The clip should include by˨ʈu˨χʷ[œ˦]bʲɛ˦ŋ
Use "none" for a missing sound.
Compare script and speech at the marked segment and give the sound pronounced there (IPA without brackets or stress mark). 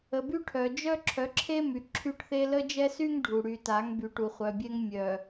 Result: œ˨